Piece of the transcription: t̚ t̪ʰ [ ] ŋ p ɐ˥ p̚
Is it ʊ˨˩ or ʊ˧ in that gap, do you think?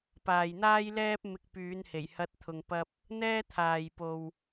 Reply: ʊ˧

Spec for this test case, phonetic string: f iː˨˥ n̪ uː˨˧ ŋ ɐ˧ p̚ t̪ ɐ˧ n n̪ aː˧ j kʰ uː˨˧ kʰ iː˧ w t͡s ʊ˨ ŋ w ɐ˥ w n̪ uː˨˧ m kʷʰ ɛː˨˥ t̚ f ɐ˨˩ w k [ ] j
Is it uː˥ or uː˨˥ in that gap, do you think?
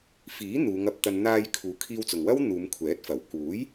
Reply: uː˨˥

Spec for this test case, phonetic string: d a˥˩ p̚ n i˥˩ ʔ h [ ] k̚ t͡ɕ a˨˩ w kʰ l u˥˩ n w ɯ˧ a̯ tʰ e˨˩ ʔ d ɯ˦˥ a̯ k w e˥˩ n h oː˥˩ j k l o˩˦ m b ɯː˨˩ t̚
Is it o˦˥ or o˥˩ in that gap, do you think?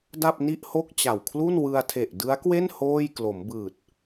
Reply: o˥˩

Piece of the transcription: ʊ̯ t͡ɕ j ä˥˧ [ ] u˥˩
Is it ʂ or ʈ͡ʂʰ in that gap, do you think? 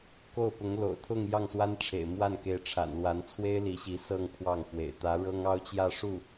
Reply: ʂ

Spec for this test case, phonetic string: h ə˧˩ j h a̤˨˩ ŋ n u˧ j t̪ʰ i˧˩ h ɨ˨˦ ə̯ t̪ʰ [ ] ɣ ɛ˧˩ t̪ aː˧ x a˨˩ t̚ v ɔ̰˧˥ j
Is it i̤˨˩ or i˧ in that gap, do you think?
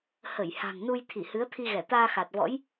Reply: i˧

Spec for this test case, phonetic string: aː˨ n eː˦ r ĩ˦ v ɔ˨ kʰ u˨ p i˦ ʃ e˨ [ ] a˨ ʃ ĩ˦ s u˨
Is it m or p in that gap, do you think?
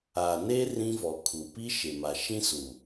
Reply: m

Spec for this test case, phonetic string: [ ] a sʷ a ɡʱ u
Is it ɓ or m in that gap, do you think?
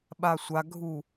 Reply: ɓ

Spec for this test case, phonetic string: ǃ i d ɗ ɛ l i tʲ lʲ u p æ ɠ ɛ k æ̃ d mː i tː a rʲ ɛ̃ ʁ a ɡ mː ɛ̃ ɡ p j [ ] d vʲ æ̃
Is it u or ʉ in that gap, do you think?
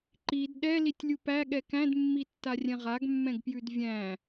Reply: ʉ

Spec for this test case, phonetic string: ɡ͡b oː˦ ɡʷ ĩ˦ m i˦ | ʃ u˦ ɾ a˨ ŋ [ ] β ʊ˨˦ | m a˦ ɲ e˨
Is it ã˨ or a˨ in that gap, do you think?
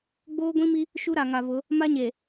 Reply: a˨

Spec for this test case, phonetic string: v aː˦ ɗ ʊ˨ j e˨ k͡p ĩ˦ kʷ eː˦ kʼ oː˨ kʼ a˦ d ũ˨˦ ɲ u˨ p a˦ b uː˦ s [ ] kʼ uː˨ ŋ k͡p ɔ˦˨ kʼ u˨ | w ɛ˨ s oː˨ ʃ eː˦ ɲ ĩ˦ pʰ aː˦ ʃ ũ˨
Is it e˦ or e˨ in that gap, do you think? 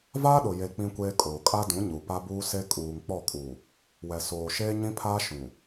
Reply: e˦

